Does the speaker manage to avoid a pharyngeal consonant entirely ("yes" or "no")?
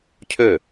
yes